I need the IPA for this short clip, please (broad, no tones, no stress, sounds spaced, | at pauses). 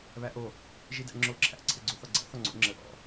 β æ ʔ o | ʒ i d æ̰ ŋ͡ǁ o ǁʰ æ̰ ǀʰ ɘ ɡ͡ǀ o θ ɔ ɡ͡ǀ æ̰ θ ɔ ŋ͡ǀ o̰ ŋ͡ǁ ə ʔ ɔ̰